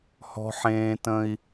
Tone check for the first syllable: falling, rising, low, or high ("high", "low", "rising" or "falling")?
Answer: high